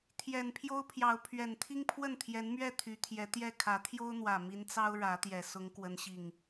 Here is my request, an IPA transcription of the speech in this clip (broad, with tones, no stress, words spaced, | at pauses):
t̪ʰjɛ˨˩npʰjo˦ʊ̯pʰjɑ˨˦ʊ̯pʰɥɛ˨˩n t̪ʰi˦ŋpʰwə˥˨nt̪ʰjɛ˨˦nmɥɛ˥˨ t̪ʰy˨˦t̪ʰjɛ˨˦t̪jɛ˥˨ kʰä˨˦t̪ʰjo˦ʊ̯n̪wä˨˩ mi˨˦nt͡sɑ˦ʊ̯ ɻä˨˦t̪jɛ˨˩ sʊ˨˦ŋkwə˨˦nɕi˨˩ŋ